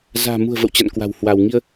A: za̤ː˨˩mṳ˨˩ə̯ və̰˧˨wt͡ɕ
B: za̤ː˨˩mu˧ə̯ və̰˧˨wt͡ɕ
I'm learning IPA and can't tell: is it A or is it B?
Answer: A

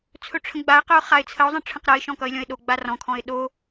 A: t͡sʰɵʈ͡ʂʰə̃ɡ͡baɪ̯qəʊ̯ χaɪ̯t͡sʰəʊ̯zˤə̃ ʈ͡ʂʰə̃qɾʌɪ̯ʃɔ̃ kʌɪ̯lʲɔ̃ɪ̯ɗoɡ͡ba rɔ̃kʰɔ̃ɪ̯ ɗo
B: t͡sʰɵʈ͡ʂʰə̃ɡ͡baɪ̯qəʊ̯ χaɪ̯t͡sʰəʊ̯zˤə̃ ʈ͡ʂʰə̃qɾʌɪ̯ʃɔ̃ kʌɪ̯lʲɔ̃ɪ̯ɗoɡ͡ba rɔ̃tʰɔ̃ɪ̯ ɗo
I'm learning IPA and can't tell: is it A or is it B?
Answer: A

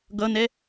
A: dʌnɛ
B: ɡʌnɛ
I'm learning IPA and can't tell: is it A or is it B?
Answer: B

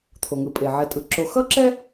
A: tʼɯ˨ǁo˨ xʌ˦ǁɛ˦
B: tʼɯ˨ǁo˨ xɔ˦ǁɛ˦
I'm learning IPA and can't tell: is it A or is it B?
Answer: A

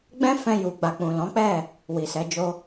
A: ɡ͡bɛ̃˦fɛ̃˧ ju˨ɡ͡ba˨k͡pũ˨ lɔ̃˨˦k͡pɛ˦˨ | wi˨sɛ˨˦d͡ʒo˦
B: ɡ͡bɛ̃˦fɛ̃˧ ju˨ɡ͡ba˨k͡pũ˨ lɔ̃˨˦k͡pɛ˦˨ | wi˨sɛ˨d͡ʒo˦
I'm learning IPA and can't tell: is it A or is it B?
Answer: A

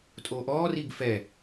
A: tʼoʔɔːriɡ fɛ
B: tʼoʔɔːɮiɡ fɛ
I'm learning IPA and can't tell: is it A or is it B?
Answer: A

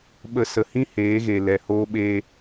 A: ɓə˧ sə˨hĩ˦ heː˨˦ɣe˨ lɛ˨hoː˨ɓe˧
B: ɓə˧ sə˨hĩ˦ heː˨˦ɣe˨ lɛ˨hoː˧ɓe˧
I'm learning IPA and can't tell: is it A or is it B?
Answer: B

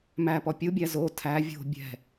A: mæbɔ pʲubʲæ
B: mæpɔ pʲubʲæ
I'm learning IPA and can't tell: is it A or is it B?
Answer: B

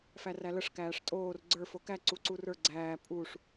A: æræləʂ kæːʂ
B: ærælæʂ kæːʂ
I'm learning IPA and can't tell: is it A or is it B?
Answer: A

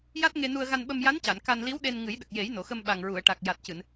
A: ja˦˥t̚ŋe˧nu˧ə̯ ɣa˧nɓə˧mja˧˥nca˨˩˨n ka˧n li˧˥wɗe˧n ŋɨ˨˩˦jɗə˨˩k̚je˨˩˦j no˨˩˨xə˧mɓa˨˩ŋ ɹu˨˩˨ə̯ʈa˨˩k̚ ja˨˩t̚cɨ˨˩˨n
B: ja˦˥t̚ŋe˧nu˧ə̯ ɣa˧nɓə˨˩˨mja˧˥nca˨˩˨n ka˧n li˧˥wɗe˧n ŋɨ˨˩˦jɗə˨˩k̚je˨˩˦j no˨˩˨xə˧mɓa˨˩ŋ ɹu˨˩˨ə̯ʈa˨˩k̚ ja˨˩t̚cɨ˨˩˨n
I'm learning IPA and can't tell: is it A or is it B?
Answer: A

